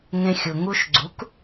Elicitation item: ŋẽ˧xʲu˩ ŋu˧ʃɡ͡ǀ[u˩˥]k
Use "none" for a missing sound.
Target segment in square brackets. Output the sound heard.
u˩˥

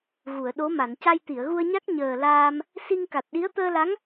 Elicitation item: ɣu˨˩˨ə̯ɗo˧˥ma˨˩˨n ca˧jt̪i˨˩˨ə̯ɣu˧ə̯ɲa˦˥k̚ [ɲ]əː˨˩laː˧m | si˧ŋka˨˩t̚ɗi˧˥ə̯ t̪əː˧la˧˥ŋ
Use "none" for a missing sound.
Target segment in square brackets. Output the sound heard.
ɲ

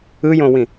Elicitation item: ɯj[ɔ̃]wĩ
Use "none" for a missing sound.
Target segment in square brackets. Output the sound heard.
õ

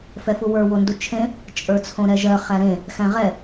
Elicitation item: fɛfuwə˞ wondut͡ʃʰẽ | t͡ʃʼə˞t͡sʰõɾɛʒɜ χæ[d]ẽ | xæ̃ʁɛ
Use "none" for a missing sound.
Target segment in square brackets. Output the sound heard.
ɾ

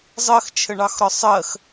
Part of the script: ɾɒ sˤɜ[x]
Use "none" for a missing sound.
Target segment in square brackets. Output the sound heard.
x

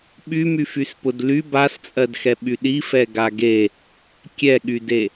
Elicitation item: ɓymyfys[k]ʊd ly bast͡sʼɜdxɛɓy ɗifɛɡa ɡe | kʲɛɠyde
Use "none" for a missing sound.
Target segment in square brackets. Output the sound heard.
p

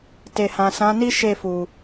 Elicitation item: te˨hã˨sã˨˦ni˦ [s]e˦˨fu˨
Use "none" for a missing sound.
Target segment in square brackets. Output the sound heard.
ʃ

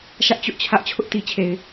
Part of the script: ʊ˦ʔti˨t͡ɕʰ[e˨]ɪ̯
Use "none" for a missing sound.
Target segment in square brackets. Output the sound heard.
e˨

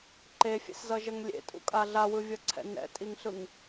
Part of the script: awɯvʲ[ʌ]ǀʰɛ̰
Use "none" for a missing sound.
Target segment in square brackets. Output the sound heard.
ʌ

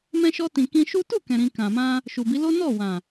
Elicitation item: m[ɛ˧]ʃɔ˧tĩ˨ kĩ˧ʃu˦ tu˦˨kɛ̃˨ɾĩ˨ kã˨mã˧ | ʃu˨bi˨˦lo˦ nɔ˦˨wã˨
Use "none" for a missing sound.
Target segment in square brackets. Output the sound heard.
ɛ̃˧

